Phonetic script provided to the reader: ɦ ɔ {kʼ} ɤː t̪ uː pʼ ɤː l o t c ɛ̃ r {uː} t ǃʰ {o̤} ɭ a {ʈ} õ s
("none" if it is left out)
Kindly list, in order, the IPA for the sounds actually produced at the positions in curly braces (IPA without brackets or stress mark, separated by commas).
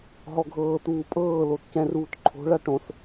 ɡʱ, uː, o̤, ʈ